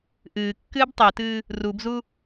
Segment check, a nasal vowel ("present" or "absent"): absent